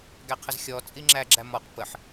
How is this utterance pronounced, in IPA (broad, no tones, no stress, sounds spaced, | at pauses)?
ɡ æ qʰ ə z xʲ ɔ t͡sʼ i ŋ͡ǁ æ ɡ͡ǁ æ m ɔ q p ə ħ